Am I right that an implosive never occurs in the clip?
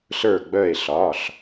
yes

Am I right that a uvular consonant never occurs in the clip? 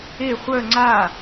no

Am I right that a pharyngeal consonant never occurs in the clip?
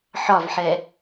no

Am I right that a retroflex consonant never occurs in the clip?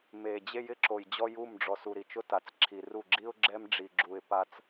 no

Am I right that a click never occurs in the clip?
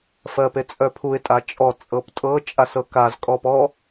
yes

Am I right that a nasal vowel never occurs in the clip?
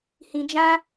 no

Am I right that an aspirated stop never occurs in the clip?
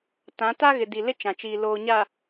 yes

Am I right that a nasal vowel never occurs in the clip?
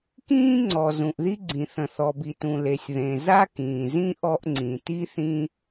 no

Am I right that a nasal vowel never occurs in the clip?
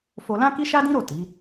no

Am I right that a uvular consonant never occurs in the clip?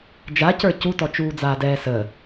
yes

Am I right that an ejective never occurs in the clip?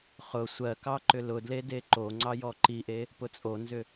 no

